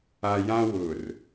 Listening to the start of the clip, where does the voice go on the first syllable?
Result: low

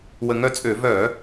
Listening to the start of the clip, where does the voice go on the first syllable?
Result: low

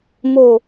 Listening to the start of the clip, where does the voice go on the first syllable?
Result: falling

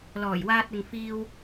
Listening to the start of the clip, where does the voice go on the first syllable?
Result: low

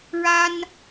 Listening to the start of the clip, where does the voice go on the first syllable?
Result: high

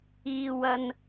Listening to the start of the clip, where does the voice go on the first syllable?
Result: low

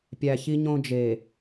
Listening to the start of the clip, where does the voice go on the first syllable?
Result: low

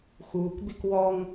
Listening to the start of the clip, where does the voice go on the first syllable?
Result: low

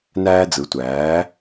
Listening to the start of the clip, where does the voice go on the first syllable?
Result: high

